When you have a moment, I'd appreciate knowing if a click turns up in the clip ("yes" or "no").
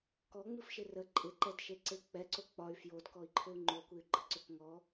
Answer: yes